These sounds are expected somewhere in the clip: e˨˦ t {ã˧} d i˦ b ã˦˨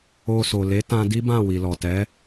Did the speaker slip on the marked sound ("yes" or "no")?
no